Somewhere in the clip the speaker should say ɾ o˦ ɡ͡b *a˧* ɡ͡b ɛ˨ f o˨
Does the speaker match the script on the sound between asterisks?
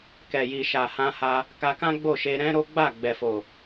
no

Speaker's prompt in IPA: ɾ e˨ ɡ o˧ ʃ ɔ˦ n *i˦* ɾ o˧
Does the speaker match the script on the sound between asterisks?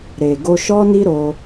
yes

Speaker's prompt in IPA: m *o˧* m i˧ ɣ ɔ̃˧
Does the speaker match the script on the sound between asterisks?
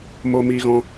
yes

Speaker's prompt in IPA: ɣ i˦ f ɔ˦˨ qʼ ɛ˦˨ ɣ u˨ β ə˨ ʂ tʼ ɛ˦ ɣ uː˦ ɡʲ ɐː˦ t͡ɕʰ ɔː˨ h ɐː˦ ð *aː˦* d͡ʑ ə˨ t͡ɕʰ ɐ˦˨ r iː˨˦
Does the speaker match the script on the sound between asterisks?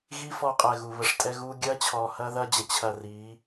no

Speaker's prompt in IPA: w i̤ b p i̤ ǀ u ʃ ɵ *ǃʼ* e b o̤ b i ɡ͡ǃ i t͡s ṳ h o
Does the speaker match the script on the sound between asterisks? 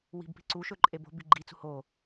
yes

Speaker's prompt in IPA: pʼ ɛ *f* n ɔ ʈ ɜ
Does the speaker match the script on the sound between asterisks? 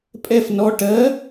yes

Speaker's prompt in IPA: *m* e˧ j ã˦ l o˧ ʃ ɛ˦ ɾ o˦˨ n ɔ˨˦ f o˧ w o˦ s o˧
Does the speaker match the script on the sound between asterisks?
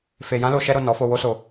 no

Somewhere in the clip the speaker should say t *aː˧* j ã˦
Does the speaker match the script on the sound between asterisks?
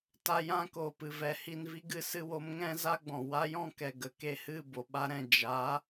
no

